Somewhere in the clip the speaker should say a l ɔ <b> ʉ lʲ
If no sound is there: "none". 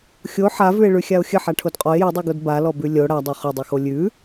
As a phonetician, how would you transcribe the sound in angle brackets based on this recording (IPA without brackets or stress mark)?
b